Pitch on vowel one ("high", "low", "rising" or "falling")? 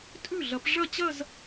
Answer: falling